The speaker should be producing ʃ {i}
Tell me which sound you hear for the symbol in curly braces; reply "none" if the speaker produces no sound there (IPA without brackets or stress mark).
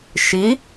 i